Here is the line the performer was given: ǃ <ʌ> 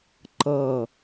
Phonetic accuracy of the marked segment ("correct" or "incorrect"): correct